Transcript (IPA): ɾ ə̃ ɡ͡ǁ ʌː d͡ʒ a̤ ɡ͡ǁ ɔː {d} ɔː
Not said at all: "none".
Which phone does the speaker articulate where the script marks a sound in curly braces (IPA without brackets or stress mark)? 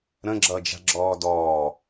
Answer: d